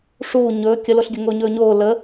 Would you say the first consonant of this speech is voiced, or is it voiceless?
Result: voiceless